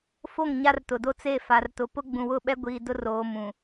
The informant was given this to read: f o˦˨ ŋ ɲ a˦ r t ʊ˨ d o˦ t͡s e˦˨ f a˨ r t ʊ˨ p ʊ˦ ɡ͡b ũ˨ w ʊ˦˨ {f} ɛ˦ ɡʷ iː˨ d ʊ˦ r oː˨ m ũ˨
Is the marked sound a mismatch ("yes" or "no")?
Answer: yes